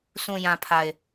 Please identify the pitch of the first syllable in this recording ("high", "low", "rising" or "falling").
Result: low